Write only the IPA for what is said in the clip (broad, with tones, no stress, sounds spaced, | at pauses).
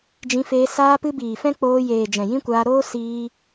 d͡ʒ ĩ˧ f eː˧ s aː˧ p ɨ˧ b iː˨ f ɛ̃˦ k͡p oː˧ j eː˨ d͡ʒ ɛ̃˨ j ĩ˦ kʷ aː˧ ɾ oː˦ s iː˧